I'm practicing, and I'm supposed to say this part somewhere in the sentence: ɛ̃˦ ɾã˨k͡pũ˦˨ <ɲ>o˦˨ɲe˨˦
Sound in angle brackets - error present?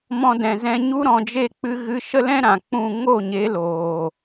yes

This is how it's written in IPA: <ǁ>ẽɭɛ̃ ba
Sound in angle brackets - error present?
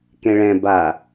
yes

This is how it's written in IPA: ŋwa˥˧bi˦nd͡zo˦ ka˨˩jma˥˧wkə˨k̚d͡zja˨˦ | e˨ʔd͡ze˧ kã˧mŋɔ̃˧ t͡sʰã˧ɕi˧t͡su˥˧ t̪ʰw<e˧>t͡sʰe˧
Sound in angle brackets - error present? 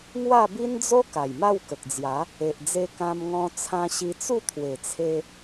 yes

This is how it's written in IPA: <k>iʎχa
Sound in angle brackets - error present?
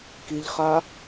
no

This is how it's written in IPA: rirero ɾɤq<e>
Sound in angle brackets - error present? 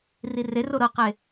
no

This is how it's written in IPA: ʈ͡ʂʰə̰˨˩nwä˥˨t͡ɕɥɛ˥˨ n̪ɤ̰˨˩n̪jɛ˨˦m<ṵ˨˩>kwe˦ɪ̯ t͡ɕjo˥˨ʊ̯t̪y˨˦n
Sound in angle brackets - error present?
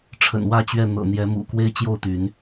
no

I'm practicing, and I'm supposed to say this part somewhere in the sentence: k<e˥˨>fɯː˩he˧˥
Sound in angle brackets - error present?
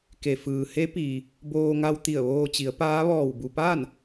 yes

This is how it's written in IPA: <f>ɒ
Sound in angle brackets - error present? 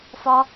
no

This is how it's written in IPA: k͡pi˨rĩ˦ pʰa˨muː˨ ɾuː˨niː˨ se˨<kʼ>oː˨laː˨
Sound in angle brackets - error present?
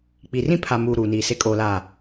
no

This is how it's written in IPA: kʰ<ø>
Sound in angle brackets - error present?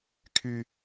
yes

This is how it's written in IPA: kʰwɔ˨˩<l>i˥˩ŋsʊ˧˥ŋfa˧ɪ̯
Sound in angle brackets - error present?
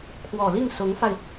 no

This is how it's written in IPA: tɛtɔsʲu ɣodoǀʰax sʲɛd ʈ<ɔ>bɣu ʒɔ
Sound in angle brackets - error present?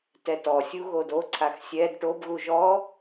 yes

